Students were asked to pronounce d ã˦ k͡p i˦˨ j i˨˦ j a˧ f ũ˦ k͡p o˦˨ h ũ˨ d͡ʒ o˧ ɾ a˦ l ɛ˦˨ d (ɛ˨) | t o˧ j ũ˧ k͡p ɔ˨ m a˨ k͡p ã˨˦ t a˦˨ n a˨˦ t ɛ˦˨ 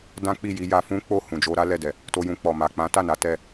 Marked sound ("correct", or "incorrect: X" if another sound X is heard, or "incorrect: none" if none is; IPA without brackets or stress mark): correct